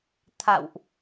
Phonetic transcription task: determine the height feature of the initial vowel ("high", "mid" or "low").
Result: low